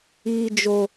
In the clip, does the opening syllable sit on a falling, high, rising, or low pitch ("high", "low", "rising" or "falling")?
high